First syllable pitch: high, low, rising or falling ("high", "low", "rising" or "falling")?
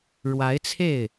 rising